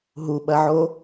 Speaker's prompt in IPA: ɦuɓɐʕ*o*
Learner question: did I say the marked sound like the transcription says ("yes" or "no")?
yes